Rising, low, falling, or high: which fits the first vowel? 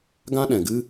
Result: high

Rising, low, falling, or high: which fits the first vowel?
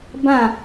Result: falling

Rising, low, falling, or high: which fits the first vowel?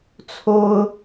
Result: high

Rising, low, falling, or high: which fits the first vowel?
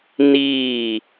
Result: falling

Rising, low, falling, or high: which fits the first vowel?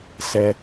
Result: high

